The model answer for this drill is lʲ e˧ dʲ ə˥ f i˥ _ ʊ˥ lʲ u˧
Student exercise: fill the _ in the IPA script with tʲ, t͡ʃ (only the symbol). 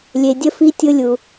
tʲ